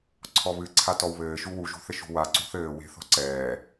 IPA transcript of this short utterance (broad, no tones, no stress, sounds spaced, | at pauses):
ǀʰ ɔ β ɨ ǀʰ a t ɔ w β ɘː ʃ u w u ʒ ṳ θ ɘ ʃ ṳ w a ǀ ṳ θ ɘː w e̤ θ ɔ̤ ǀ ɛː